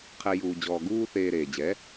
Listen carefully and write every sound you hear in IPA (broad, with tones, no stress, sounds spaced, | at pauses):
qʰ ɛ˧ j uː˧ d͡ʑ ɔː˧ ɡ uː˥ θ eː˧ ɾ eː˩ d͡ʑ ɛ˩˥